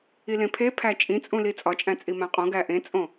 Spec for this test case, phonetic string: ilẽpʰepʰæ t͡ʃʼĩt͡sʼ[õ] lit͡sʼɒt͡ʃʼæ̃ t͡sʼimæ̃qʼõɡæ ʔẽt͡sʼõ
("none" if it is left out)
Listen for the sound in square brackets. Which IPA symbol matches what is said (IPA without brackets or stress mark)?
ũ